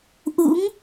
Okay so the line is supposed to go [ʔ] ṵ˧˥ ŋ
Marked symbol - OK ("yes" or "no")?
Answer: yes